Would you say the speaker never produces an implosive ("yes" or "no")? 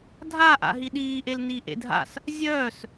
no